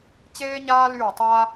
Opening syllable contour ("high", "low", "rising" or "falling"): high